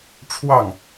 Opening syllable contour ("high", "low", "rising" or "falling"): falling